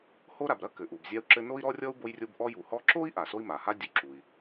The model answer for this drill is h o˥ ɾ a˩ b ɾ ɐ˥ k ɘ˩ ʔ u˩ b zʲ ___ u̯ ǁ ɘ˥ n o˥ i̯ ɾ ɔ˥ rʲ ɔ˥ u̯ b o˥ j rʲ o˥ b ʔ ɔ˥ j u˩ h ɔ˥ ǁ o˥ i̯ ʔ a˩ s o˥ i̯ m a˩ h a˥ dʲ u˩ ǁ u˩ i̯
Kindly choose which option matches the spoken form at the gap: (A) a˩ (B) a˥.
B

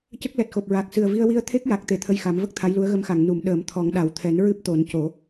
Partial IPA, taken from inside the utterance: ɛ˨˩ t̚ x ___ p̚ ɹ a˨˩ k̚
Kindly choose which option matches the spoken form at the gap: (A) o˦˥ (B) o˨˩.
B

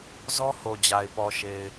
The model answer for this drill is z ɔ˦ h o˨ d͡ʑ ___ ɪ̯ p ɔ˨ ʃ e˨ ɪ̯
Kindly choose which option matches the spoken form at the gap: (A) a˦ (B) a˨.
B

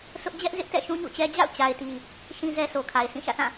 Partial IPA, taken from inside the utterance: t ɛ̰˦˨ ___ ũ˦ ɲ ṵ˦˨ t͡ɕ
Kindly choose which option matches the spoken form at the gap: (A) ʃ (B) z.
A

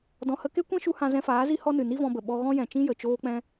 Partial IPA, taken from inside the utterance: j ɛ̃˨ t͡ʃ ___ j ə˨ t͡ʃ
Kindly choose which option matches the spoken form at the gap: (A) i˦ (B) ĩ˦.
B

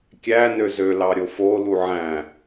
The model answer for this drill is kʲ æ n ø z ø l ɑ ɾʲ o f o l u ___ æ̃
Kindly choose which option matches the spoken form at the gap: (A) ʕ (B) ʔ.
A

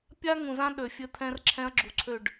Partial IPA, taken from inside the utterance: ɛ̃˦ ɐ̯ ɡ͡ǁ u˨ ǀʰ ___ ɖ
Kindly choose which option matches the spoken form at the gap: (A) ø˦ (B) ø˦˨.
B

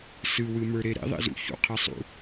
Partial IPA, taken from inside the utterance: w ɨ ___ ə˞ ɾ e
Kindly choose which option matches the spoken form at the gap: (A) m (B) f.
A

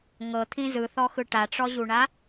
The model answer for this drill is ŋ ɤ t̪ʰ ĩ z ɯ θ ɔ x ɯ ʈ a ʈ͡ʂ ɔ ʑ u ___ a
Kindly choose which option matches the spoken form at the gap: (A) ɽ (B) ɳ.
B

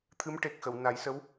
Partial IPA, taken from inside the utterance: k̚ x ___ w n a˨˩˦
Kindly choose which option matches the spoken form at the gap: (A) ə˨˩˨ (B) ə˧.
A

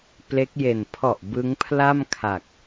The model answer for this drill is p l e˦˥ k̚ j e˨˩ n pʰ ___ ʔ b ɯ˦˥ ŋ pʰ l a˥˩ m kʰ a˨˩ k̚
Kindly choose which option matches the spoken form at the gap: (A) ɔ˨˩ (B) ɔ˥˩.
A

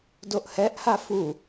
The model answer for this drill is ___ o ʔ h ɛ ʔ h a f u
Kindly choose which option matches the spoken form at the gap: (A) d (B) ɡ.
A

